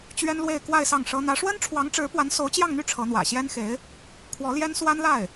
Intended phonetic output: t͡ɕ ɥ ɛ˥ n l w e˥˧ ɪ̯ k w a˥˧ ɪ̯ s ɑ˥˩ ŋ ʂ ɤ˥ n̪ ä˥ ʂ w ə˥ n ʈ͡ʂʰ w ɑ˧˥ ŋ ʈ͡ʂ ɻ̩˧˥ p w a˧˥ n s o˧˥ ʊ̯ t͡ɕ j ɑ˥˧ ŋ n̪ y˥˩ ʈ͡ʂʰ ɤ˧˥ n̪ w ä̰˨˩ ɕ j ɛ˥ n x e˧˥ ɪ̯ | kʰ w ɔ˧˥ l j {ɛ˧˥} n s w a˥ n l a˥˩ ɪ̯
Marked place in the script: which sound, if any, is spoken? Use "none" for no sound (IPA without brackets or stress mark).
ɛ˥